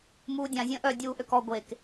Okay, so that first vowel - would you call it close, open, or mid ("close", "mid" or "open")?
close